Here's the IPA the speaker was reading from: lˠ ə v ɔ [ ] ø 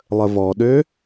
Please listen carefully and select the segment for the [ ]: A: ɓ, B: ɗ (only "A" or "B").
B